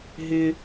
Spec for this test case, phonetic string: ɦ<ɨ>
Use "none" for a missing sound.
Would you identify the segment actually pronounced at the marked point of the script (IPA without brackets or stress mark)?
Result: ɪ